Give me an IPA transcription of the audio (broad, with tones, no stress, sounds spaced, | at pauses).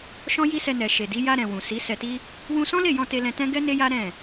ʃ ɔ̃˦ j i˦ s ɛ˧ n ɛ˨ ʃ e˨ d i˨˦ j a˧ ɾ ɛ̃˨ w ũ˨ s i˨˦ s ɛ˧ t i˦ | w ũ˧ s ɔ̃˦ l e˦˨ j ɔ̃˧ t e˧ l ɛ̃˧ t ɛ̃˦ ɡ ɛ˦ n e˦ j a˦ ɾ ɛ̃˦˨